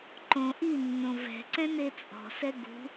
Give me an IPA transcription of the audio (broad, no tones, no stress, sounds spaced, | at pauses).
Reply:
ǃ õ ʔ i nː õ v ɛ̤ ǀ ɛ̃ n e t͡sʼ ɔ̤ s ɛ ɡ ṳ